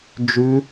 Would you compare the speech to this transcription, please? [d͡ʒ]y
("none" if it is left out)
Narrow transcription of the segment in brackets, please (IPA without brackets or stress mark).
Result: d͡ʒ